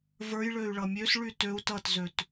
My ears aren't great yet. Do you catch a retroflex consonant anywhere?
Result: yes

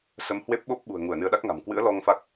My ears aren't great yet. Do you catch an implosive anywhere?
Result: yes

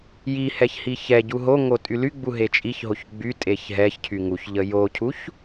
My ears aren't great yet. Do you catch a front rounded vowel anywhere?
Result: yes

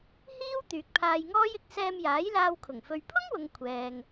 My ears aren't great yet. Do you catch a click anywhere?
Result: no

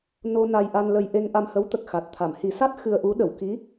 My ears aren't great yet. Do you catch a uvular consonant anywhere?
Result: no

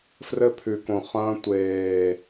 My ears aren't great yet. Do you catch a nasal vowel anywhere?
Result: yes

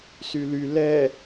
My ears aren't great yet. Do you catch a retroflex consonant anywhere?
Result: no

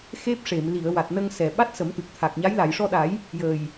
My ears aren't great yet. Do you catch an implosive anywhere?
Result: yes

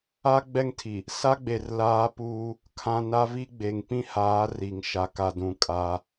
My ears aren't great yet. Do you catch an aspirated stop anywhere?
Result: yes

